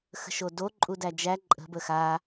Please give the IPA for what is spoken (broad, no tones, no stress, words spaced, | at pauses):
xə̤ʃodo ǃʼudæd͡ʒæ ǃʼə̤ bəxa